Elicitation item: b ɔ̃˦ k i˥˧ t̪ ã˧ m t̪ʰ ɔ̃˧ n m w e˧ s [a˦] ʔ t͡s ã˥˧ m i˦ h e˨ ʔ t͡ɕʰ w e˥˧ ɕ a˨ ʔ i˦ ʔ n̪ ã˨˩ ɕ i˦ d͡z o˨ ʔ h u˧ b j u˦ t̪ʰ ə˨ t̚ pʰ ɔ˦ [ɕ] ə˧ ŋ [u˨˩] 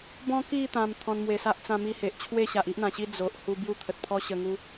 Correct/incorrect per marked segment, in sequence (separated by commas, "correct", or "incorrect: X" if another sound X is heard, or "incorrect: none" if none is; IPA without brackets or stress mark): correct, correct, incorrect: u˧